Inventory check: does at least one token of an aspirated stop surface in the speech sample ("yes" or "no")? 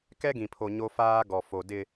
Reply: yes